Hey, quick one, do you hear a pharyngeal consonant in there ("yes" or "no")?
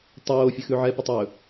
yes